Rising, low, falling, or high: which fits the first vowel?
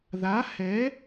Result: rising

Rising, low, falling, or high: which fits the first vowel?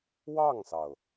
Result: falling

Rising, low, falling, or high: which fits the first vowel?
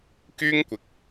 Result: high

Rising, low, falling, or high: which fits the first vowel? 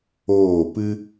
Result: falling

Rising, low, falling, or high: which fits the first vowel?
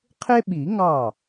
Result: high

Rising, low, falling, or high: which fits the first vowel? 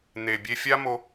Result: low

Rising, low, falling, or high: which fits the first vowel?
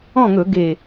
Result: falling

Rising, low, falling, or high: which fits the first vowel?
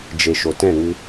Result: low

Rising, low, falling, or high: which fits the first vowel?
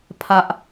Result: high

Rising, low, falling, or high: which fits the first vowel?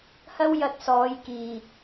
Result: high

